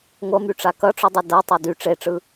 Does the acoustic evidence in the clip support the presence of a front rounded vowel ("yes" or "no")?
yes